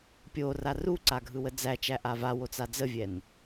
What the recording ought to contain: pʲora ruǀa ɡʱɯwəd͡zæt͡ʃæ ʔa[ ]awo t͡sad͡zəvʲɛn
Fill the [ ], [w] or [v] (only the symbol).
v